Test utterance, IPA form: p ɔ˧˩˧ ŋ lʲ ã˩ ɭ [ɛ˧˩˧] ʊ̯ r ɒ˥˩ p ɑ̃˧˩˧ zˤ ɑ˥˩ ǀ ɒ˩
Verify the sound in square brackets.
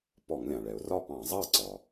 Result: incorrect: ɛ˩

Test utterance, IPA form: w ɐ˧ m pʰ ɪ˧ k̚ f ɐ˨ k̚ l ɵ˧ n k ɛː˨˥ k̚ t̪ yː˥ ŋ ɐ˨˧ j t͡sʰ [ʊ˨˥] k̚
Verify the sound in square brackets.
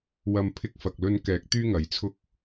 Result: incorrect: ʊ˥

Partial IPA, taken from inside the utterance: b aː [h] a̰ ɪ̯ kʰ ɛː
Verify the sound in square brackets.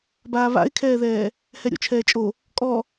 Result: incorrect: β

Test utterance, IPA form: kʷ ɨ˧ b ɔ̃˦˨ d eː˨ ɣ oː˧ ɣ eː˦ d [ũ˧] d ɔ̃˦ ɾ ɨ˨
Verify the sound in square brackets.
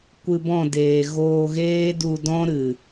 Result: incorrect: u˧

